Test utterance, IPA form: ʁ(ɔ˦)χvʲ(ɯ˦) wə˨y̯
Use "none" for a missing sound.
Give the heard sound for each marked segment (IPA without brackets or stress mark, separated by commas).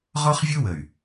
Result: ɔ˦, ɯ˦